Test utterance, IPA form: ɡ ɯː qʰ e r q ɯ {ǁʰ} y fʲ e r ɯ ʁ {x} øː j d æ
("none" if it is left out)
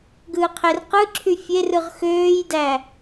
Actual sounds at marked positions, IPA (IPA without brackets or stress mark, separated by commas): ǁʰ, x